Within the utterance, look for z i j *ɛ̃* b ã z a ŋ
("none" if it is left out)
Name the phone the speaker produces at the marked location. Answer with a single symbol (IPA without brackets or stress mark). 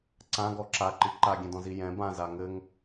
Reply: ɛ̃